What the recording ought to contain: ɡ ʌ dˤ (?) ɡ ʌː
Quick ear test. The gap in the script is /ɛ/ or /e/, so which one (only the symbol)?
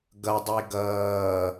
e